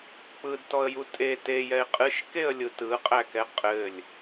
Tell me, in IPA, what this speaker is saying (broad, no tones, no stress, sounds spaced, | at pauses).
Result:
k͡p ɯ d t ɔ ə̯ j u tʼ e t e j ɛ ɪ̯ qʼ ɨ ʃ k e ə̯ lʲ ɯ t ɯ qʼ æ k ɛ qʼ ɘ lʲ